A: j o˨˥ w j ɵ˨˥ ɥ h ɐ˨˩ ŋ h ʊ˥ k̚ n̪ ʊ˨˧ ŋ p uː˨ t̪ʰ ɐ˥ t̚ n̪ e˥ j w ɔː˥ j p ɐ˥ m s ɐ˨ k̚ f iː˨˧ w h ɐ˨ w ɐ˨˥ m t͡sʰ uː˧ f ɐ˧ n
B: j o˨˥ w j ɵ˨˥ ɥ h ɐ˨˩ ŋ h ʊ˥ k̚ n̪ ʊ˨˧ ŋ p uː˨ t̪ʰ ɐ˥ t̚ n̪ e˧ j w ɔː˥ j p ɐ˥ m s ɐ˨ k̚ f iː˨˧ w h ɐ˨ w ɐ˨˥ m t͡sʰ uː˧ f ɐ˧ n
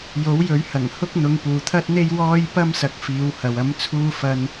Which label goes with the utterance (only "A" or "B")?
A